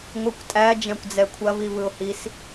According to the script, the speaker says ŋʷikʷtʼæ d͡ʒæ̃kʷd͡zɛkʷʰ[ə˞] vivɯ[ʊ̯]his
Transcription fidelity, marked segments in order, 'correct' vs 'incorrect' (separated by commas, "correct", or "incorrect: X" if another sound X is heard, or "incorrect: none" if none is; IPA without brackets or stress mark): incorrect: ɐ, correct